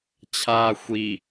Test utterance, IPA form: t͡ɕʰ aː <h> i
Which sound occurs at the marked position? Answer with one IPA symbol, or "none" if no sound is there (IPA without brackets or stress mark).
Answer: xʷ